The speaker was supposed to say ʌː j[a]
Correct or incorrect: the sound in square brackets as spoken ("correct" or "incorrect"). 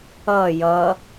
incorrect